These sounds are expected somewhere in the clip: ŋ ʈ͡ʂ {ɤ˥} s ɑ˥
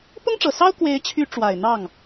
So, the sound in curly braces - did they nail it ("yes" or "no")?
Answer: no